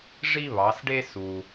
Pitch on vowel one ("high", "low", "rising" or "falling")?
high